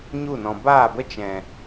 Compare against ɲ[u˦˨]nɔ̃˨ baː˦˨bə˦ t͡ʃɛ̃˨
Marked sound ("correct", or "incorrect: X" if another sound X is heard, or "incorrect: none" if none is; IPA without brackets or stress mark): correct